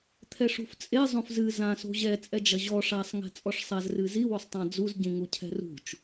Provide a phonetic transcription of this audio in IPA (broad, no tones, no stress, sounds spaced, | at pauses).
t̪ʰ ɛ ʂ ṳ f t͡sʼ e zˤ õ f z ɨ z ã s o̤ ʑ ɛ t͡sʼ ɛ d͡ʒ ɐ ʑ ɔ ʂ a sˤ ŋ ɛ̤ t͡sʼ ɔ ʂ sˤ a z r ɨ z i w o sˤ tˤ ã d͡z u z ɟ ĩ ŋ u cʰ ɛ̤ r ṳ t͡ʃ